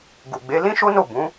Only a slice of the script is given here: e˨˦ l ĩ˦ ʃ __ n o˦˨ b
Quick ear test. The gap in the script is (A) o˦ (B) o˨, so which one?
A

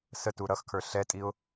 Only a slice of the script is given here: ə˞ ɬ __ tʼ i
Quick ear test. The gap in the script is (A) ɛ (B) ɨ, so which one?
A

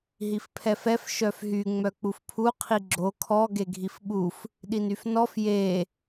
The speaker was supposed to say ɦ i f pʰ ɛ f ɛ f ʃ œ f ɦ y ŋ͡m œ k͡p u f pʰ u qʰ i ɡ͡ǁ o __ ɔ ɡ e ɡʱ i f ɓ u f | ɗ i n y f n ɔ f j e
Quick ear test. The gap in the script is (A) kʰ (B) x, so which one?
A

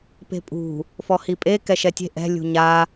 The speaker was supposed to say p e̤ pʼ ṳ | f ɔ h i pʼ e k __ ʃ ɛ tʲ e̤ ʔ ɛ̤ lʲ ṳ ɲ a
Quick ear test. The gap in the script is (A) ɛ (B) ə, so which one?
A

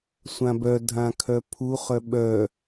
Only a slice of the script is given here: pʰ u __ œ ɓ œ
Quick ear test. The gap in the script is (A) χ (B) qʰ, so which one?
A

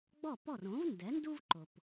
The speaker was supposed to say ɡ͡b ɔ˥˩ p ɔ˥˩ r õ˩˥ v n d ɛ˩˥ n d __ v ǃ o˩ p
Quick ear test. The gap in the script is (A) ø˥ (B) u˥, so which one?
B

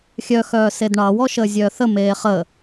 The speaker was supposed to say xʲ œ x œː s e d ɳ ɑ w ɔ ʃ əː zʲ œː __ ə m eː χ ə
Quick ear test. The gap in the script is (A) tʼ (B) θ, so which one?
B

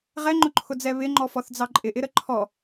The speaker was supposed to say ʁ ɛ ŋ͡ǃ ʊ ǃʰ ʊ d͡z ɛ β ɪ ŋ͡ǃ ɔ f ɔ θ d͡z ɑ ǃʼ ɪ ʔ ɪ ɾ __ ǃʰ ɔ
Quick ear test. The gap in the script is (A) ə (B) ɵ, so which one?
A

